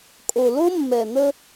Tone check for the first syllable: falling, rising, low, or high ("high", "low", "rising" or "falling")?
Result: low